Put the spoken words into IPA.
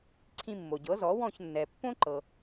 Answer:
ǀʰ ĩ˧ mː o˩ ɟ ɤ˩˥ z ɔ˩˥ w ɔ̃˥˩ ç nː ɛ˩ pː õ˥ ǃ ɤ˩

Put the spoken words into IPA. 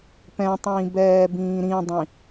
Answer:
p ɛ̃ tˤ ĩː b ɛː b ĩː ɾ ĩ dˤ ĩ

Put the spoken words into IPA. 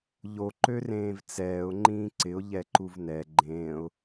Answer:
ʎ o ǃ ø r ẽː v t͡s ɛː ʊ̯ ŋ͡ǃ ĩː ǀ ɪ ʊ̯ ʎ ɛ ǃ u v n ɛ ɡ͡ǃ ẽː ʊ̯

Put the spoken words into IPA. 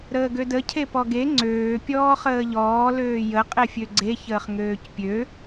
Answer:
ɾ əː ɡ ø d ə cʰ e p ɔ ɡ e ŋ͡ǀ øː pʲ ɔː χ əː ʎ ɔː l øː j ə qʼ e fʲ ø ɡ͡ǀ e ç əː χ ŋ øː c pʲ ø

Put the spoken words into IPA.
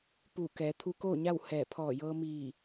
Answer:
p uː˧˩ k ɛː˩˧ t̪ʰ u˧ k oː˥˨ ɲ a˥˨ w h ɛː˧˩ pʰ ɔː˧˩ j ɤː˧ m iː˧˩

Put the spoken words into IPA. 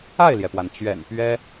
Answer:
a˥˩ ɪ̯ l j ɛ˩ p w a˩ n t͡ɕ ɥ ɛ̰˨˩ n p ɥ ɛ˥

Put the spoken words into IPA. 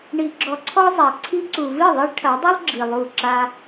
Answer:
ɳ i˧ ɡ͡ǁ ɔ˧ ǀʰ ɔ˦ zˤ a˨ ǀʰ i˧ ǀ u˨ v ɨ˦˨ ðˤ ɛ˦ ɭ ʈʰ ɐ˨˦ dˤ ɨ˦ lˠ ɡ͡ǁ i˨ lˠ u˦˨ ǁ a˧

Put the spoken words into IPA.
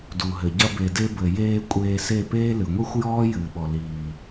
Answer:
d u˨ ɦ ɘ˨ ɟ ɐ˧ b e˨ d e˧ b ɘ˨ j eː˧ kʷʼ eː˧ s e˦˨ p eː˦ l ɨ˨ ŋʷ i˦ xʷ j ɔː˦ j ɨː˨ ɓ ɔ˨ l iː˨

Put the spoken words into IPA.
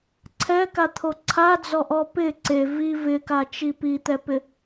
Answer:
ǀʰ ɛ k a t̪ʰ o ǀʰ a d͡z ɔ ʔ ɔ p ɪ ǀ e v i v ɪ k a t͡ʃ i p i t̪ ɛ p ɪ

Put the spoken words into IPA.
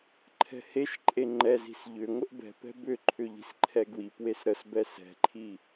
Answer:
ǃʰ ɛ̤ h e ʃ ǃʼ e ŋ͡ǃ ɛ z i̤ s ʎ ʏ ŋʷ ə ʔ b ɛ̤ p ɛ̤ b ʏ ǃʰ ʏ ʎ i̤ s ǃʰ ɛ ɡ w i p w e s ɾ ə s b ɛ s ɛ̤ ǃʰ i

